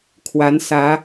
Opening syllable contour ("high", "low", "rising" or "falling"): rising